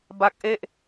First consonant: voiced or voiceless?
voiced